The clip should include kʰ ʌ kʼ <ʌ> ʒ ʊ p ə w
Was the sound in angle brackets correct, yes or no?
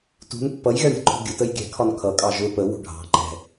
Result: no